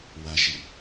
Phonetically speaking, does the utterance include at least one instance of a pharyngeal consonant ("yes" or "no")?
no